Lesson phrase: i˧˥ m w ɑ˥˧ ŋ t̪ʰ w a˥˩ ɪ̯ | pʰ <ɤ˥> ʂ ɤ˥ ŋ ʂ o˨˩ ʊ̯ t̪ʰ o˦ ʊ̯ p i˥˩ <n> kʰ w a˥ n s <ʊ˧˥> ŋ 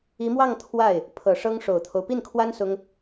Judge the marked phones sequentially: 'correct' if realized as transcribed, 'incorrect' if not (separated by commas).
incorrect, correct, incorrect